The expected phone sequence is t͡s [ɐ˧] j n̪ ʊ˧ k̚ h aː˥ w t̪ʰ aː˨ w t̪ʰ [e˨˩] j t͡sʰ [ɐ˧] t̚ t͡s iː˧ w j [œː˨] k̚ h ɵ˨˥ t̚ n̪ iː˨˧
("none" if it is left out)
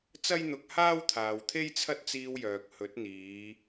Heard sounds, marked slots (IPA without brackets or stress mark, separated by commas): ɐ˥, e˥, ɐ˥, œː˨